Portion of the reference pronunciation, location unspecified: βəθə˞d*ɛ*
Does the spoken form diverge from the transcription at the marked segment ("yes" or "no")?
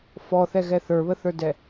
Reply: no